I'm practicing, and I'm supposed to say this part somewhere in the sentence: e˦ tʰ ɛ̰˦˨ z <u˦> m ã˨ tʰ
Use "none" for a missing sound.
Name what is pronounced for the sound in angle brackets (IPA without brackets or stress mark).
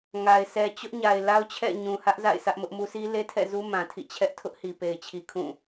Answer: u˦